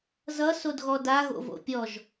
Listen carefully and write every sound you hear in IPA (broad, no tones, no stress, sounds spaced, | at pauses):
z ʌ s o d ɣ ɔ d a ɣ o̰ v o̰ pʲ ɔ ʒ